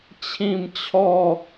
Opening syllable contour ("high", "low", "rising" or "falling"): falling